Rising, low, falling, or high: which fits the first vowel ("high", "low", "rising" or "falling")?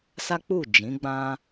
high